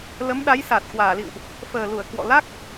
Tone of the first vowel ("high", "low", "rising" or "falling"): rising